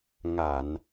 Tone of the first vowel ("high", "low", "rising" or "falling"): low